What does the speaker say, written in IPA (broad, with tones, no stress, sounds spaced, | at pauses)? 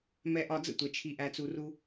m ɛ˧ ʔ ɒ˧ d͡z ə̰˥ tʷ ɛ˩ t͡ʃʰ i˧ ʔ æ˧ t͡s u˧ r u˥